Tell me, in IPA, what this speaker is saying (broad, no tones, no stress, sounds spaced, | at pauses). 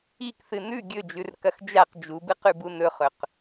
i k θ ɨ n ʉ ɡʲ ɵ d͡ʒ ʉ r k ɐ x d͡ʒ a q d͡ʒ u b ɨ q ʉ b u n ɵ χ ɵ q